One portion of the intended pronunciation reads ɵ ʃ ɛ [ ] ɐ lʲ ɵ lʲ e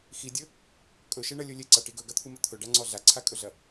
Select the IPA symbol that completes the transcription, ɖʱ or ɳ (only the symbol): ɳ